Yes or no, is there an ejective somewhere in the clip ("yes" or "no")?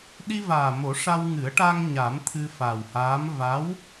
no